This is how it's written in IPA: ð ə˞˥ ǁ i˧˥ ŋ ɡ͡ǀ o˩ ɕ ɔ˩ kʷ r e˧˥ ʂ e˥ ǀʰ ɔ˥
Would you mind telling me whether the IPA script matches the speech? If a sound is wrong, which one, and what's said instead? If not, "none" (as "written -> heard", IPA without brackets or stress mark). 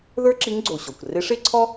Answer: none